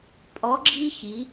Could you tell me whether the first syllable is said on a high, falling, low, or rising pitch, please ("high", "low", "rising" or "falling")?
rising